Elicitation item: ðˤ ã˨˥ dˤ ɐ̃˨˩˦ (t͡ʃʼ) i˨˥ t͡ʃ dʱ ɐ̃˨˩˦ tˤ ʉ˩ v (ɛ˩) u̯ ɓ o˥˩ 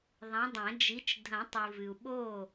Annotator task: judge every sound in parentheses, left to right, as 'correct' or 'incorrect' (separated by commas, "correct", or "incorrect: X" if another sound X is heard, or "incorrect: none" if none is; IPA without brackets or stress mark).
incorrect: d͡ʒ, incorrect: ɨ˩